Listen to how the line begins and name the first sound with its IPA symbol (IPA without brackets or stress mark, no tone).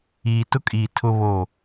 iː